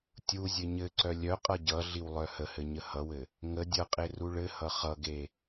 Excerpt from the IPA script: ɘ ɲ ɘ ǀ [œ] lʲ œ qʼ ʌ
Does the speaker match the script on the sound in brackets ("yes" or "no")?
yes